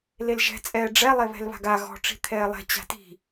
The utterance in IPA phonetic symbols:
l e l ʒ ɛ̤ t͡sʼ ɛː ɖ͡ʐ ɛ lˠ e β ɛ̤ l β a̤ ɡ a ɣ ɔ̤ ʈ͡ʂ i̤ t̪ʰ ɛː lˠ ɛ̤ t͡ɕ a̤ t i̤

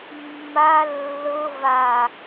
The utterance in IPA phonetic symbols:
mː a lː ɤ v a

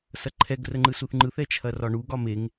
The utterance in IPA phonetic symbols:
s ɐ ǃʰ ɛ ɡ r ə ŋ͡ǃ ɯ s u θ ŋ͡ǃ ɯ θ ɛ t͡ʃʰ ɐ r ɒ ɳ u ɡ ɒ m e ŋ

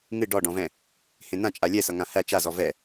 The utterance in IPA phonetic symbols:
ŋ ɨ ɖ ɔ ɖ ɔ̃ v ɛ̃ | h ẽ n ã t͡ʃʼ a lʲ ɛ s ʌ ŋ ã h æ t͡ʃ a z ɔ v ɛ

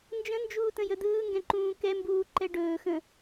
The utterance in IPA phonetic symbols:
n d͡ʒ ə̃ n d͡ʒ uː t ə̃ j ə d̪ ɯː ŋ ɡ ɛ̃ ǃ ũː k ɛ m b uː ǃ ɛ ɖ ɵː x ə̃

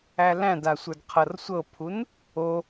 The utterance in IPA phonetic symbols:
æ l æ̃ d a sʷ ə˞ d qʰ ɤ r sʷ ɤ pʰ u n | o

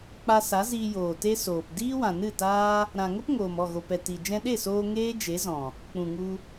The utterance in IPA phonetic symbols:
k͡p a˧ s a˨˦ z iː˧ j oː˨ t e˦ s oː˨ p d iː˦ w ã˨ n ɨ˦˨ t aː˦ | ɾ ã˨ ŋ ə˦ p ŋ oː˨ m ɔ˦˨ ɣ o˨ p ɛ˨ t i˨ d͡ʒ ɛ̃˧ ɗ e˦˨ s oː˧ ŋ eː˦ d͡ʒ e˨˦ z ɔ̃˨ | k͡p ũ˨ ŋ u˧

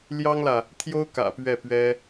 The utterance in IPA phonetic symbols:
l j ɑ˥ ŋ l ä˨ | t̪ʰ j o˥ ʊ̯ k ä̰˨˩ p ɥ ɛ˥˩ p ɥ ɛ˥

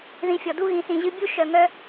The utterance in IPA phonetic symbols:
ð ĩ˧ fʲ ɔ˨ d u˦ ɣ ĩ˨ s ĩ˨ ʑ ɨ˧ bʲ u˦ ʃ œ˨ ŋ œ˦

